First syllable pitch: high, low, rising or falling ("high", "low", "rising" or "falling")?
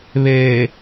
low